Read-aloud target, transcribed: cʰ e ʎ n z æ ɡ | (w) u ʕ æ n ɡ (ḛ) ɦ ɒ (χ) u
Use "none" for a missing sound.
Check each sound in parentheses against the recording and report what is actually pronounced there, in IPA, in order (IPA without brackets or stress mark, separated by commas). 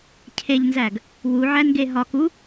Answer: w, e, k